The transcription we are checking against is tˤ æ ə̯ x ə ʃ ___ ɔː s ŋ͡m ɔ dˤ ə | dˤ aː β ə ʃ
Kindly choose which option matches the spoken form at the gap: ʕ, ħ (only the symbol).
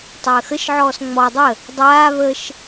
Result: ʕ